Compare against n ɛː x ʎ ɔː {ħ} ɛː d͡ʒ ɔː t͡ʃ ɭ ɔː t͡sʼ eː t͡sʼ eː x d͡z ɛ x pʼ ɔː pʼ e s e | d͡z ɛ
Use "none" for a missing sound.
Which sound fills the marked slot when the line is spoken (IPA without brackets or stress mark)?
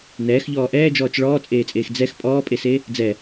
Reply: ʔ